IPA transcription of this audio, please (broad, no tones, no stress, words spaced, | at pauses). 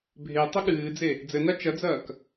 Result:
bʱe tˤɘɠɨːd͡ze | d͡zɘna t͡ʃɐd͡zɐːk